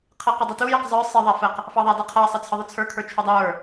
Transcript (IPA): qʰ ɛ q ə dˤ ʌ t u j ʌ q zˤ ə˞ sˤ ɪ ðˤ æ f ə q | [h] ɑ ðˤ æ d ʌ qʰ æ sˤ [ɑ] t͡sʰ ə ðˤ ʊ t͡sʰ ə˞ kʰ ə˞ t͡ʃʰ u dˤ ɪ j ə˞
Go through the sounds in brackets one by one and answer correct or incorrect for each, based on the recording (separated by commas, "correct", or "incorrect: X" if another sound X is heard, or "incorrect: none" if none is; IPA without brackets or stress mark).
incorrect: f, incorrect: ʌ